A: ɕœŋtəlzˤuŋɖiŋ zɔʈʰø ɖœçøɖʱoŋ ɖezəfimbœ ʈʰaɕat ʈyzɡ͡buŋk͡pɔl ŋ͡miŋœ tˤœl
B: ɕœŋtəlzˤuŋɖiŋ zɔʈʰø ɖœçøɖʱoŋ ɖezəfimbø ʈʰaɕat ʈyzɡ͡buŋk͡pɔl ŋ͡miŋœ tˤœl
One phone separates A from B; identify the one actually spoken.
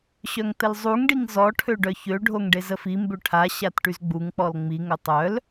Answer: B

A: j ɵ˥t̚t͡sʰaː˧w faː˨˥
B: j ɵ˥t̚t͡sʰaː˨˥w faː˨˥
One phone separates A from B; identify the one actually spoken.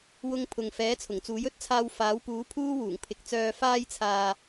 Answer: A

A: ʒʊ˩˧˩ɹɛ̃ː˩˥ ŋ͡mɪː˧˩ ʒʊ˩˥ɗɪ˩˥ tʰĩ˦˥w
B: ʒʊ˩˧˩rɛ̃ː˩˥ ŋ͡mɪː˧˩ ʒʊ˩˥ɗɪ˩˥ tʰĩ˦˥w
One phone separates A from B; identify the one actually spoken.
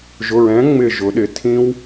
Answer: A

